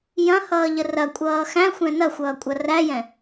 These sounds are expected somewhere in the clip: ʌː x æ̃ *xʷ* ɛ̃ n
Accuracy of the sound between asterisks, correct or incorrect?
correct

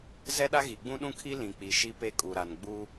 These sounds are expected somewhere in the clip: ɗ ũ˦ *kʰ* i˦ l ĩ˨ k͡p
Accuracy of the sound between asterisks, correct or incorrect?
correct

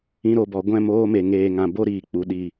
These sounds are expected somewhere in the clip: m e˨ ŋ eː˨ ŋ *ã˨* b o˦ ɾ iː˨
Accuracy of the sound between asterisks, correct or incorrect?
correct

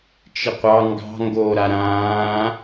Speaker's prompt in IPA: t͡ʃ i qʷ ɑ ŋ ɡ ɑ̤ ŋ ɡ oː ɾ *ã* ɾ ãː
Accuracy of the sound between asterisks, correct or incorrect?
incorrect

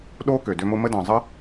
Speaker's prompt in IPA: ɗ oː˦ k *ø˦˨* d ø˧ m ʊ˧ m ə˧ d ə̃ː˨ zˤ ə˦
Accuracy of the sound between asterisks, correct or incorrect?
incorrect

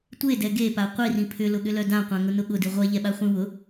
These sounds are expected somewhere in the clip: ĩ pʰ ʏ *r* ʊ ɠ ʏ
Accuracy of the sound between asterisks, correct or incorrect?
incorrect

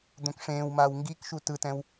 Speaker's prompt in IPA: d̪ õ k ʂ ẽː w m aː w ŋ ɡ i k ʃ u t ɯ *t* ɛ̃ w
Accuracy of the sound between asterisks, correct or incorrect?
correct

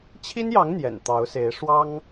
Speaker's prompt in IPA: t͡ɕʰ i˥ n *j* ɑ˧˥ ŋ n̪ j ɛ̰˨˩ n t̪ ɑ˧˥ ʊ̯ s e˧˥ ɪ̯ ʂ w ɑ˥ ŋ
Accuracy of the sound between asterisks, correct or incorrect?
correct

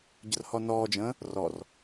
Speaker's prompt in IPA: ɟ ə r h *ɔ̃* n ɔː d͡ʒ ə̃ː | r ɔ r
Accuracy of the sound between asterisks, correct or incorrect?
incorrect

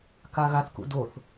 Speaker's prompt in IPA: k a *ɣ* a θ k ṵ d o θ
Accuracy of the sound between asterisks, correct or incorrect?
correct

